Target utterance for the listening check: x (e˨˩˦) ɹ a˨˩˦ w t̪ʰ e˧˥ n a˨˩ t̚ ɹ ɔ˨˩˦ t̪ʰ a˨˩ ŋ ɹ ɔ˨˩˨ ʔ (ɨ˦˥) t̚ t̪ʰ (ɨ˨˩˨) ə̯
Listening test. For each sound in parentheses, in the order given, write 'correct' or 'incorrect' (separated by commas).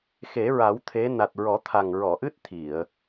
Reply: correct, correct, incorrect